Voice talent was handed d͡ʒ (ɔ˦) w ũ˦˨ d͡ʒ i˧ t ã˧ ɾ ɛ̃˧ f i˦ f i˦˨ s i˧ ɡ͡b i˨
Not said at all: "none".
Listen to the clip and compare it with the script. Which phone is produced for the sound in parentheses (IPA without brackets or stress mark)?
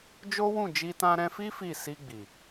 o˦